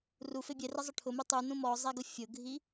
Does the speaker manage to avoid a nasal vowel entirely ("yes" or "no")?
no